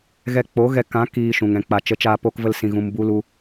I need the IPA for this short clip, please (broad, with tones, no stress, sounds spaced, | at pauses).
ɣ ɛ˧ k͡p o˨˦ ɣ ɛ˧ k ã˨˦ k iː˧ ʃ ũ˨ ŋ ɛ̃˨ k͡p a˨ t͡ʃ ə˨˦ t͡ʃ aː˧ p oː˧ k v ə˧ l s ĩ˧ ɣ ũ˧ m b u˦ l u˦